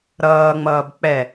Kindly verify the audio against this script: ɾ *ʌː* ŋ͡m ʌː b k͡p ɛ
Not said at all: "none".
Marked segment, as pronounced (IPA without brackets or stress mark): ʌː